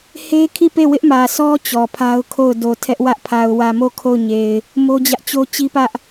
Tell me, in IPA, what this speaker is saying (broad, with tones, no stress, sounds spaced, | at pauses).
h e˦ kʰ i˦˨ p e˦˨ w ɪ˦ ʔ m ä˨ sʰ ɔ˦ t͡ɕ ɔ˨ pʰ a˦ ʊ̯ kʰ o˦˨ ʊ̯ d o˨ tʰ ɛ˦ ʔ w ä˦ ʔ pʰ a˨ ʊ̯ w ä˨ m o˦˨ kʰ o˦˨ ʊ̯ ɲ e˨ ɪ̯ | m o˦ d͡ʑ ä˦ ʔ t͡ɕ o˦ t͡ɕ i˦ p ä˦ ʔ